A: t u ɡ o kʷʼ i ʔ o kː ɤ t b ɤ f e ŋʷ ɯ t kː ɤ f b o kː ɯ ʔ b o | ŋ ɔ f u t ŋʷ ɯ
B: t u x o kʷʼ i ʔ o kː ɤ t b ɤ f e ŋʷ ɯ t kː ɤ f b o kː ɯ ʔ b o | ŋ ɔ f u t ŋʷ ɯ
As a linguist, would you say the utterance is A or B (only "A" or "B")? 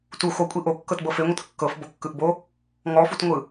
B